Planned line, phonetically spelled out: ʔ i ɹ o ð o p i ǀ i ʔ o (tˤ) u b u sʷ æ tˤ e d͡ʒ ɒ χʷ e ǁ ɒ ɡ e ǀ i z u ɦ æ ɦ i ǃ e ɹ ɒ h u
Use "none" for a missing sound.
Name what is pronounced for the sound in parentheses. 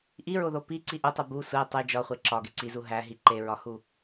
tˤ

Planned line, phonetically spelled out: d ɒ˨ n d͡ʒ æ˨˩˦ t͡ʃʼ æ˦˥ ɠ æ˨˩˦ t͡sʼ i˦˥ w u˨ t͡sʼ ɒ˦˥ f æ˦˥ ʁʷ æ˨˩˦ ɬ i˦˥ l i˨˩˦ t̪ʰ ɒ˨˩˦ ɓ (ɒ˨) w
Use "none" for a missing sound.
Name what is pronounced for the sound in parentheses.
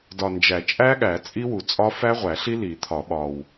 ɒ˨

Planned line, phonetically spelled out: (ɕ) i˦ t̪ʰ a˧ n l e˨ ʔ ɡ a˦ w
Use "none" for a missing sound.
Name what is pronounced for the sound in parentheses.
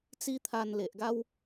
t͡s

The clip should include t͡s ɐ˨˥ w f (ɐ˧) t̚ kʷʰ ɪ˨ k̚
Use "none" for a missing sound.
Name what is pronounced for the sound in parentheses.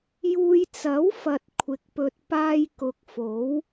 ɐ˨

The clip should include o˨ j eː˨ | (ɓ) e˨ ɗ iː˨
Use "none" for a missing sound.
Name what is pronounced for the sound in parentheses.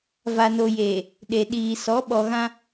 ɗ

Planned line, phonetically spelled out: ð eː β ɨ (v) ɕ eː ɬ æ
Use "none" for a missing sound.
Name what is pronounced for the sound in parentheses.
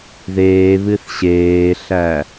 θ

